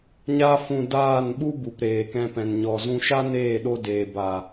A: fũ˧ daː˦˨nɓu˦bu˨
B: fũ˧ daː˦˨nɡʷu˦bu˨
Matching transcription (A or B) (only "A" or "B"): A